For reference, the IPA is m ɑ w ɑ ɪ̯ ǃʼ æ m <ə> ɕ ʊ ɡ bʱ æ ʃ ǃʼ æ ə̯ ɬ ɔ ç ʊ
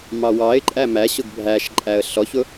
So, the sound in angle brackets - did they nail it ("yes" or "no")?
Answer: no